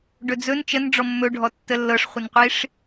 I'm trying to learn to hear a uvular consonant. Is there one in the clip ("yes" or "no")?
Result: yes